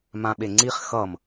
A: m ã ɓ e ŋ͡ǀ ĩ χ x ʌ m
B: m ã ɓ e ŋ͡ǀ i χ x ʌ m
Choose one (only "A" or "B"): B